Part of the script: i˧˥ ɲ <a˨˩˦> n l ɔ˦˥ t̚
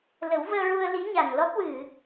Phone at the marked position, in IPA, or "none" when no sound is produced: a˨˩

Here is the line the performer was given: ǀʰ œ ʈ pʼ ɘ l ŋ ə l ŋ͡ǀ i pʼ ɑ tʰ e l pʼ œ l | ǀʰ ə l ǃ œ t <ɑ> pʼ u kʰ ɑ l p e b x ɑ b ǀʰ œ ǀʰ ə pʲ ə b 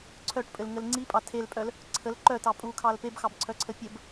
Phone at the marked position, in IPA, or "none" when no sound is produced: ɑ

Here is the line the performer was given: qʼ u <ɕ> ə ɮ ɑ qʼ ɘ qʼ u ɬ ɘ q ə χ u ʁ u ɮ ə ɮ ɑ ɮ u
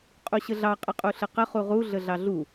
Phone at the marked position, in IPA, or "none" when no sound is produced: ɕ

